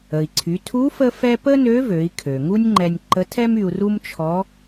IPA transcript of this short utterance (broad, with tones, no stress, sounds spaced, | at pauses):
ə˩ i̯ ǀʰ y˩˧ tʰ u˧˥ f ə˥ f ɛ˥ p ə˥ n ø˧˥ v ø˩˧ i̯ kʰ ø˩ ŋ u˥ nʲ ŋ͡ǃ ɛ˧ nʲ ǃ ə˧˥ tʰ ɛ˥ m y˧ u̯ r u˥ m t͡ʃʰ ɔ˧˥